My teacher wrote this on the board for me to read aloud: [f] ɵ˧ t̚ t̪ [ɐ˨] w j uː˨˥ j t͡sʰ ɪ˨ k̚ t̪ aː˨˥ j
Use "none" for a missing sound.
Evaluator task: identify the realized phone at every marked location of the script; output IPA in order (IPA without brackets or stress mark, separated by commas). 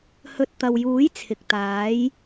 h, ɐ˨